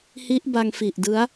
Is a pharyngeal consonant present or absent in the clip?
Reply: absent